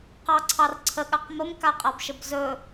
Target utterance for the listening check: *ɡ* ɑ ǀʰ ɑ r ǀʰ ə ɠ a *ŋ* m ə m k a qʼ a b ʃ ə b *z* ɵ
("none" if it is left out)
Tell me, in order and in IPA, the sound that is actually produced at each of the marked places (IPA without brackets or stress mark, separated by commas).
q, q, z